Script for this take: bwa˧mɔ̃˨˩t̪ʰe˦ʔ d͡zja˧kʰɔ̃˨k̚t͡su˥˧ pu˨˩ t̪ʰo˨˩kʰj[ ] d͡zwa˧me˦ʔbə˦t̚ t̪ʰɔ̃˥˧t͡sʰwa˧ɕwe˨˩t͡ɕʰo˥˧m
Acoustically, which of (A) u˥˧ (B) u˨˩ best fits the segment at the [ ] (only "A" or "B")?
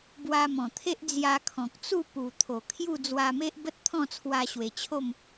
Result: A